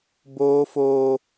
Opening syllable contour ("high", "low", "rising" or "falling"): high